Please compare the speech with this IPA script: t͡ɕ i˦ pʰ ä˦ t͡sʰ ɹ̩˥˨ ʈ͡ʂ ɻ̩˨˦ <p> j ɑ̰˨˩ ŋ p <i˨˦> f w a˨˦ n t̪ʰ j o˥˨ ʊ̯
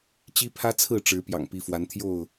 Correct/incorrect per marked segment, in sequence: correct, correct

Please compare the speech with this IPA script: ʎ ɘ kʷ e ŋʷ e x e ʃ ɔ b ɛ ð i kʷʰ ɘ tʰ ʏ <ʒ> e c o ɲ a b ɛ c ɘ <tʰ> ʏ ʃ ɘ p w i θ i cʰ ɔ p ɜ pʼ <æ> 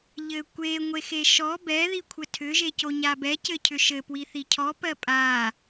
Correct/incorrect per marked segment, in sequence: correct, incorrect: cʰ, incorrect: a

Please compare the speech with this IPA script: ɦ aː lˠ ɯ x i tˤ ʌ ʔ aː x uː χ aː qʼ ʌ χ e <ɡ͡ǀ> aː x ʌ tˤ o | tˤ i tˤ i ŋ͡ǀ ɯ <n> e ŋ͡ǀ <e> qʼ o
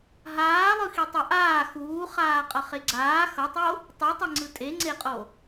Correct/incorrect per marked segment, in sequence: correct, incorrect: tʼ, correct

